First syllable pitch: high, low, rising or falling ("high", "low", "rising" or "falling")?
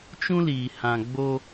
high